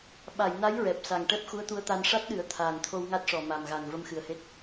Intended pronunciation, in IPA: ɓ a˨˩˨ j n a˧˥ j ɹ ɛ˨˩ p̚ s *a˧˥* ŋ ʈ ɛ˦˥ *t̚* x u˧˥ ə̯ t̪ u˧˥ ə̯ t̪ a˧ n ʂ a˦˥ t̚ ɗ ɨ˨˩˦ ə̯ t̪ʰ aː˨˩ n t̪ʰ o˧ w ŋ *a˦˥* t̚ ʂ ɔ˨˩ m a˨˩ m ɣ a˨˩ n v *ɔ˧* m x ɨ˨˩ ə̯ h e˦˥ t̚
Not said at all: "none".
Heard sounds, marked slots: a˨˩, p̚, a˦˥, ə˧

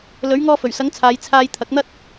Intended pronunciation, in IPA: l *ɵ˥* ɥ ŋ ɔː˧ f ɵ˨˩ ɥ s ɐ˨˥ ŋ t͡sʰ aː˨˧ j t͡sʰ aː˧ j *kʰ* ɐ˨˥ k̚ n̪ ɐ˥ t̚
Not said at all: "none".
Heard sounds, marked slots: ɵ˨˥, t̪ʰ

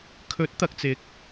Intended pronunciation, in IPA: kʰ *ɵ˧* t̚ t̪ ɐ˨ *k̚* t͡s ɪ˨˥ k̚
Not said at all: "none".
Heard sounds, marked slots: ɵ˨˥, k̚

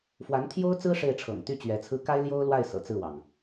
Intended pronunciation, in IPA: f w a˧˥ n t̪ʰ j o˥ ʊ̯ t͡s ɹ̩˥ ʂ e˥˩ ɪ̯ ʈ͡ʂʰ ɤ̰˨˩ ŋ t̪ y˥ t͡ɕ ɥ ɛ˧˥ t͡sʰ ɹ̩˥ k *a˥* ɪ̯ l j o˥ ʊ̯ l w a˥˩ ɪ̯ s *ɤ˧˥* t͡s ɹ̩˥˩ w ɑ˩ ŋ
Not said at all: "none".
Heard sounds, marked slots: a˥, ɤ̰˨˩

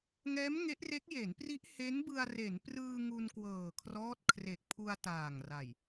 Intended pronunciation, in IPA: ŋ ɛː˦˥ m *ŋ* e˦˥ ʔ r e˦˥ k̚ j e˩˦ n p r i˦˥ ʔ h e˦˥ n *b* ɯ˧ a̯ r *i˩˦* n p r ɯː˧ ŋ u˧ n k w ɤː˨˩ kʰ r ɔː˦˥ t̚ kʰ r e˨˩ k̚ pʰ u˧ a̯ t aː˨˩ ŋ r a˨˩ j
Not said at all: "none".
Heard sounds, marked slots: ŋ, b, e˩˦

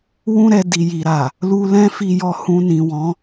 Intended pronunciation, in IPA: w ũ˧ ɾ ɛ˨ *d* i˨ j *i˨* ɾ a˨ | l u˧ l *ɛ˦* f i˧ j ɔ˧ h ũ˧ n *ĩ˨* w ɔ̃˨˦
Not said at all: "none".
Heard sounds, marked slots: d, i˨, ɛ̃˦, ĩ˨

